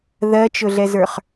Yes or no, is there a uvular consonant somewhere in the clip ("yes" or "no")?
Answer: yes